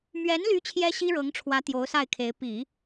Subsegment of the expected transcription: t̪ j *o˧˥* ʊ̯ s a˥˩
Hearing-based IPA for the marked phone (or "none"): o˧˥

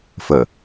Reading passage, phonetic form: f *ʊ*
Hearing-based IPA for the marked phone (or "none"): ə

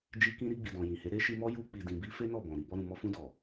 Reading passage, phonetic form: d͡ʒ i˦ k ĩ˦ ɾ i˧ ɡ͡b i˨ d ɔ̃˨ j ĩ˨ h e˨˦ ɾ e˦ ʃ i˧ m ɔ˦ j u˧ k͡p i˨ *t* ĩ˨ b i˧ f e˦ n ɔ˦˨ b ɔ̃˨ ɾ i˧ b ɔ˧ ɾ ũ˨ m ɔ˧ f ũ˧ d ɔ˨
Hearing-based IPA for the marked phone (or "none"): d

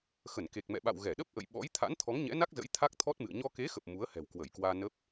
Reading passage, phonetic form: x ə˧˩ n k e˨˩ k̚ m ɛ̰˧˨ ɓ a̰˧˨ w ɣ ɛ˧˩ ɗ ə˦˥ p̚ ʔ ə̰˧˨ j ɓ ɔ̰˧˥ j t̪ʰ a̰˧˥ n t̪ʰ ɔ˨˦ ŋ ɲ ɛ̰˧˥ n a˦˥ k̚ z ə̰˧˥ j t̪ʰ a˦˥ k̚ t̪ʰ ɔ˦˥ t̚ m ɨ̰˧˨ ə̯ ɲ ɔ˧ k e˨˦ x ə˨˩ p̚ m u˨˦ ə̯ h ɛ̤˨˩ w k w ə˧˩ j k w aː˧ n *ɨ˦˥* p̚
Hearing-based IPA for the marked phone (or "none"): ə˦˥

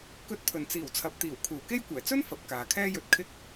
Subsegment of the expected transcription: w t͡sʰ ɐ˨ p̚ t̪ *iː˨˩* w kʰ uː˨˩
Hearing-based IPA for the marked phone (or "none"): iː˨˩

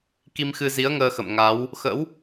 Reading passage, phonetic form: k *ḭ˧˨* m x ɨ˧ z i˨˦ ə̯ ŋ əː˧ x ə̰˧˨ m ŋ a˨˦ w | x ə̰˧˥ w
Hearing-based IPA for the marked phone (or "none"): i˧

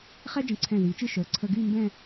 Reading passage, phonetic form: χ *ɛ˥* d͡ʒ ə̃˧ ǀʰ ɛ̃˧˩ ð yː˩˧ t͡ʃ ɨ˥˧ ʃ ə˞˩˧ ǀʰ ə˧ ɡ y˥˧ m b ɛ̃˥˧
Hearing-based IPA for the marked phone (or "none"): ɛ˥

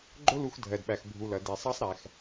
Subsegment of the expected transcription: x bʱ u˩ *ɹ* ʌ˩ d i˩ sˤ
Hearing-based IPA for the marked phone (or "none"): l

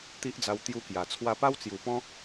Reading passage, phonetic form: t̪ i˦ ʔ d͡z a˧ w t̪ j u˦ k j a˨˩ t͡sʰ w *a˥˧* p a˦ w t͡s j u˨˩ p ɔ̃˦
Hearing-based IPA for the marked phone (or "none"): a˧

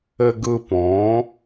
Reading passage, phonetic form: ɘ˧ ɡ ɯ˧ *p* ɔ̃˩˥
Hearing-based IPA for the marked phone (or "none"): p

